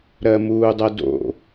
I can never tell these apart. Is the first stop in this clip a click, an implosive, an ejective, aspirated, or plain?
plain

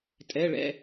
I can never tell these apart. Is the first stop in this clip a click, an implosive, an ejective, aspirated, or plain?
ejective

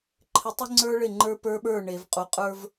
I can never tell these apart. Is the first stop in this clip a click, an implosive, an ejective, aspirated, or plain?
click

